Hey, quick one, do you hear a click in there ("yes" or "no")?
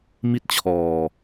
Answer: no